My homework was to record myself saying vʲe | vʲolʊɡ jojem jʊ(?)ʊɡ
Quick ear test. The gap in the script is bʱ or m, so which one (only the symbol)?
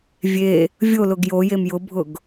bʱ